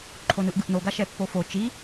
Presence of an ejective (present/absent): absent